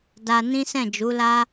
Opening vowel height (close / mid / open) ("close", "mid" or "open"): open